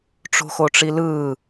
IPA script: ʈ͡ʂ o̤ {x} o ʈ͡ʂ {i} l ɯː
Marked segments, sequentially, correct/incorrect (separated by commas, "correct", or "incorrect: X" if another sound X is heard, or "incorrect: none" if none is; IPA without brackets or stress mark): correct, correct